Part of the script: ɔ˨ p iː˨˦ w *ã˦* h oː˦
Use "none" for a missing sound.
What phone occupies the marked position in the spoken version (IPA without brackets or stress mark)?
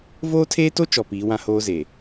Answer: ã˦